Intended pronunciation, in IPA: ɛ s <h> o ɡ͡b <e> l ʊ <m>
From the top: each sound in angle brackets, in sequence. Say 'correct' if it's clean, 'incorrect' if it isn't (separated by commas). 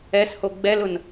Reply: correct, incorrect, incorrect